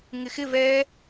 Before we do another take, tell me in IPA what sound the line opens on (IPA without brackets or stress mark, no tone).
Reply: ŋ